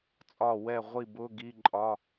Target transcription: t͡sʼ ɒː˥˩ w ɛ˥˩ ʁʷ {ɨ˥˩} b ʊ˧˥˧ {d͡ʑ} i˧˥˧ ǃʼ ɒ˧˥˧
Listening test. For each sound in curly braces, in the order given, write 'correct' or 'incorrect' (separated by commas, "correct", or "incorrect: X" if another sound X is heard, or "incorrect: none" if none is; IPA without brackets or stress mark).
incorrect: i˥˩, incorrect: ɡ